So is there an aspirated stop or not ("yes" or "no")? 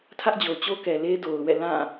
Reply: yes